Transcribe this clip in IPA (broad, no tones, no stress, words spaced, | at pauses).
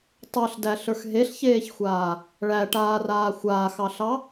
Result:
tˤə˞ɬdæɬə˞x ɦeɬçeːçxʷaː | ɭæʈaːraː xʷaːxɑɬɑ